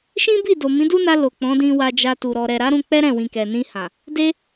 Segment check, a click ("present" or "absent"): absent